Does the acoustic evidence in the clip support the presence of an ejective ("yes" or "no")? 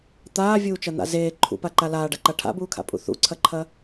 yes